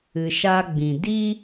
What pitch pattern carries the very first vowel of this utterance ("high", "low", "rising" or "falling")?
low